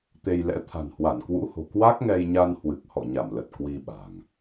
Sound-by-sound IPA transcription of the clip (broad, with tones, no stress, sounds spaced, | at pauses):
t̪ e˧ j l ɛ̰˧˥ t̪ʰ a̤˨˩ n h w a˧˩ n k w ṵ˧˥ h o̤˨˩ k w a˦˥ k̚ ŋ ɛ˧ j ɲ a˧ n h w ɨ˨˩ k̚ h ɔ̰˧˨ ɲ a˧˩ m l ə˨˩ t̚ k w i˧ ɓ a̤˨˩ ŋ